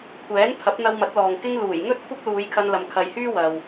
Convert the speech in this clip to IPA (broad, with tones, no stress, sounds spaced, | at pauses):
kʷʰ ɛː˨˥ n pʰ ɐ˨˥ p̚ n̪ ɐ˧ w m ɐ˨˥ t̚ l ɔː˨ ŋ k ɪ˧ ŋ l uː˨˩ j ŋ ɵ˥ t̚ kʷʰ ɐ˥ k̚ l uː˨˧ j kʰ ɐ˧ n l ɐ˨ m kʰ ɐ˨ j h yː˥ w ɐ˨ w